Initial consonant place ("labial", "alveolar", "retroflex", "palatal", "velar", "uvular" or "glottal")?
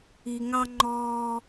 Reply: velar